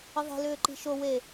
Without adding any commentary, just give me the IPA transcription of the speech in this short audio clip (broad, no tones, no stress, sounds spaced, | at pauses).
ə ðˤ e̤ l ʏː ǃ i̤ ʃ o w e